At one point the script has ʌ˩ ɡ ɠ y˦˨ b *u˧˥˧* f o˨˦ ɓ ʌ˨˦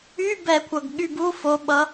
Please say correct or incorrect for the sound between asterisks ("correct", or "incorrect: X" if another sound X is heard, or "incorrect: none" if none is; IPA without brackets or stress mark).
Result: correct